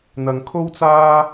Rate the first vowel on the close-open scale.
open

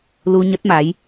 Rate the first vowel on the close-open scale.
close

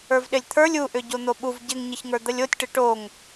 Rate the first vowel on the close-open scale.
mid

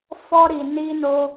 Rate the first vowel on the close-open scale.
mid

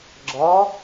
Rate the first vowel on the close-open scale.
open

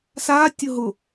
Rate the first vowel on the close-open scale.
open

